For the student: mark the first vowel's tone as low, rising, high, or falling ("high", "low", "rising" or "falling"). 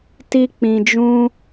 high